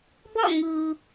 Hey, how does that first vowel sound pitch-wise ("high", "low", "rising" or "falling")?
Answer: falling